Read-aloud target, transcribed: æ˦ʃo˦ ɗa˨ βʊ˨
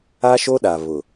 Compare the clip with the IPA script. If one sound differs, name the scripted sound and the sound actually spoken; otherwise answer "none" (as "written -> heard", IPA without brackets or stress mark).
æ˦ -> a˦